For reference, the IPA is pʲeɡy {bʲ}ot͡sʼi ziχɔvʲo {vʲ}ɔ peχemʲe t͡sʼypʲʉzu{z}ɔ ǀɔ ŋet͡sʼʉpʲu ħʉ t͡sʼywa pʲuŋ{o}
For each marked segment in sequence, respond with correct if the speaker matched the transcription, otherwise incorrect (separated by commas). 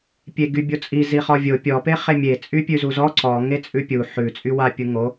correct, incorrect, correct, correct